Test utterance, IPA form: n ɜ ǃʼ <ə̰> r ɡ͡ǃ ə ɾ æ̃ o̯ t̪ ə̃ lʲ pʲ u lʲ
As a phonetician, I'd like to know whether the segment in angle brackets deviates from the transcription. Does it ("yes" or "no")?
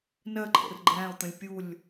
no